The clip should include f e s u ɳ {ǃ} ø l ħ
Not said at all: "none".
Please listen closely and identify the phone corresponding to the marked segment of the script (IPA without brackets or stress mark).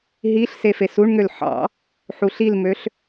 ŋ